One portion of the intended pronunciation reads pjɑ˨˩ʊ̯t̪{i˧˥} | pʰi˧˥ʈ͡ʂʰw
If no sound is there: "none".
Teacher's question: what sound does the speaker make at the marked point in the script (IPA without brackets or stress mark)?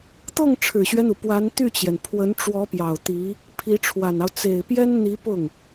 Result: i˧˥